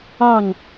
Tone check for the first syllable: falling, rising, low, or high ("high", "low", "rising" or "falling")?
falling